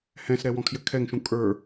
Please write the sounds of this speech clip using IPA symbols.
hɛ̃sɾɛ wɔ̃kʰjɘkʰɛŋʃũ kʼə˞

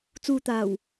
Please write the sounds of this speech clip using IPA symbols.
t͡suː˨t̪aː˨˩w

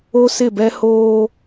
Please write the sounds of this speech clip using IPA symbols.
o˦sɪ˦˨bɛ˦ hoː˦

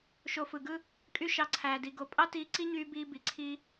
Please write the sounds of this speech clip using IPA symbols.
ʃo˧fɯ˨ɡɯ˦ | kʼy˦ʃɑ˧ǀʰæː˨di˨ ɡo˨pʼɑ˦tiː˧ ǀi˦ɲyː˧ biː˦bi˨ǀʰiː˦

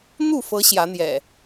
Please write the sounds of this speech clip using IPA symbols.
n̪u˥˨fɤ˨˦ ɕjä˨˦n̪jɛ̰˨˩

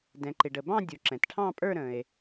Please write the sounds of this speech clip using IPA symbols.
dɛ̃˩ǃɪ˩ɖə˩ bɑ̃˥˨dʲu˩ ǁɛ̃˩tʈʰɑ̃˥˨pʼə˞˥˨ ɾə̃˩e̯

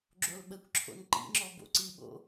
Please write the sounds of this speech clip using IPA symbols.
ɡ͡ǁolɓəkʷǁʰo̰n ǃḭŋ͡ǁɔ bo̰ǀiɓo̰

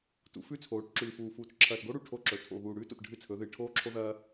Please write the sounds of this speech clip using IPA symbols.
tṵ˨˦fʉ˦t͡sʰoː˨˦ʈ ǁʉː˨fuː˨fuː˨t ǁʰɐː˨tɡo˦ɽu˨ ʈʰo˦ǁɵ˨ tʰo̰˨ɣuː˨ ɽʉː˦to̰˨t ɖʱɨ˦t͡sʰɵ˨˦ðɨː˨ ʈʰoː˦ǁʰo˦ðɐː˦

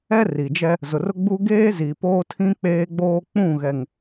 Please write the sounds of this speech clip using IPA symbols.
ɛ˦ri˨d͡ʒɛ˦ | zʊ˨rʊ˦ɡ͡bu˦ ɡeː˦zi˨ poː˦tʰĩ˦ k͡peː˦ɡ͡boː˦ k͡pũ˦˨ɣɛ˨ŋ

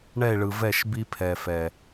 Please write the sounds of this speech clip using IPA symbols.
ɳɛ˦˨e̯ɭɯ˨vɛ˦˨ʃ bi˦pʰɛ˨fɛ˨

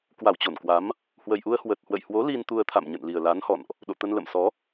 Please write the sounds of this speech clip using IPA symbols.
kwa˧˩wt͡ɕo˧˩nkwa˨˦m | hwə˨˩jʔu˧ə̯ hwə˨˩t̚hwə̰˧˨jhwo˨˦ li˧nt̪u˧ə̯t̪ʰa̰˧˨m ɲə̰˧˨nli˨˩ə̯la˨˦nhɔ̰˧˨nʔ | ɗo̰˧˨t̪ə˧n lə̰˧˨msɔ˨˦

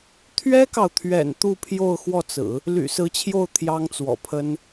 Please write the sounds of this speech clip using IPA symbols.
t̪ʰɥɛ˥kɑ˨ʊ̯t̪ʰɥɛ̰˨˩n t̪u˥˧pʰjo˥˧ʊ̯xwɔ˥˩t͡sɹ̩˨˩˦ | ly̰˨˩sɹ̩˧˥t͡ɕʰjo˥˩ʊ̯ t̪ʰjɑ˥ŋt͡swɔ̰˨˩pʰə˥n

